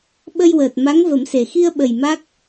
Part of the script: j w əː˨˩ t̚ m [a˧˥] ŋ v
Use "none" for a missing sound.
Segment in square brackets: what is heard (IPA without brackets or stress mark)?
a˧˥